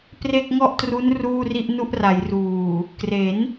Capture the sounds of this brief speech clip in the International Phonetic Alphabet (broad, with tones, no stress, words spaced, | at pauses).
pre˥˩k̚ŋɔ˥˩ʔtru˦˥n ruː˥˩ri˥˩ʔnu˥˩ʔ ra˩˦jruː˨˩ | kre˩˦n